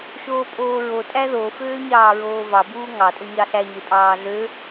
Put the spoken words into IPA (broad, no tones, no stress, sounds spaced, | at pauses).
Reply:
ʃ oː pʼ oː ɹ o tʼ æ ð o f øː ɲ ɑː ɹ oː v ɑ b uː ŋ ɑ tʼ o ɲ ɑ ɬ æ ɲ e pʼ ɑː ɮ ø